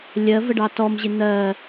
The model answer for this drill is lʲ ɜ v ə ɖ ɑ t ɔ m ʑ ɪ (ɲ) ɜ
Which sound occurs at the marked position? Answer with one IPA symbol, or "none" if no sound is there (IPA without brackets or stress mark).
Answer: n̪